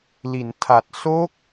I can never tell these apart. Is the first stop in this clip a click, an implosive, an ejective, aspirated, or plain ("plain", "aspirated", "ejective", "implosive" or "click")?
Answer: aspirated